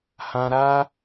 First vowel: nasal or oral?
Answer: nasal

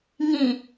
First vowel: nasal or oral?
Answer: nasal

